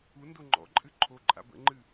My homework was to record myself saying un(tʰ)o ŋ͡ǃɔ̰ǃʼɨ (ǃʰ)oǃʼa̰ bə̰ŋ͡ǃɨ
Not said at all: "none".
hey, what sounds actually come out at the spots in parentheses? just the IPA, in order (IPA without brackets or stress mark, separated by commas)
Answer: d, ǃʰ